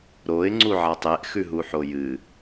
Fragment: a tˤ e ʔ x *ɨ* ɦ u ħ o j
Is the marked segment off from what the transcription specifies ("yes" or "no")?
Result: yes